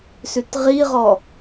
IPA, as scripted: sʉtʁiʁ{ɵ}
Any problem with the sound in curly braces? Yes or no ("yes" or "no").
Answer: yes